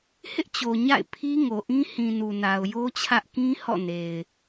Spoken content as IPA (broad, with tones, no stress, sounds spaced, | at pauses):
h ɪ˦ ʔ t͡ɕ o˨ ɲ a̰˦˨ ɪ̯ pʰ i˦ ŋ o˨ ʔ ĩ˦ h ĩ˨ n u˨ n a˨ ʊ̯ j o˦ t͡ɕʰ ä˦ ʔ k ĩ˦ h ɔ̰˦˨ n e˨ ɪ̯